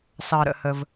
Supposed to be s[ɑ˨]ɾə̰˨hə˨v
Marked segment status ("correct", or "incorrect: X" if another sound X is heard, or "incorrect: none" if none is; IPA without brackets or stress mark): correct